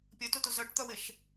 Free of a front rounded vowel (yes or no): no